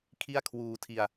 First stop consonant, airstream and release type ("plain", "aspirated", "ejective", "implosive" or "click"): aspirated